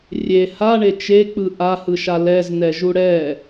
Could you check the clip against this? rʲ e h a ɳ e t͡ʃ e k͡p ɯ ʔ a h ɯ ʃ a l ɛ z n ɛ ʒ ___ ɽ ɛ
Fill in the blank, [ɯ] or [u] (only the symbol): u